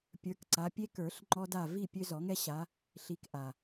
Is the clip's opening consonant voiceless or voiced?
voiceless